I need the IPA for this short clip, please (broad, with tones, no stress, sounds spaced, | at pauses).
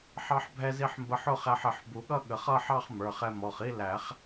ħ ɑ˧ ħ bʱ ɛ˧ z i˧ ħ m b ə˧ ħ ʊ˥˧ χ æ˧ ħ ɪ˨˩˦ ħ b u˨˩˦ ɠ ʌ˥˧ ɠ ə˨˩˦ χ ʌ˥˧ ħ ɑ˥˧ χ m ə˞˩˧˩ χ ɛ˧ m ɔ˩˧˩ χ i˥˧ l æ˨˩˦ χ